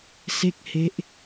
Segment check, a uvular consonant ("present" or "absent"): absent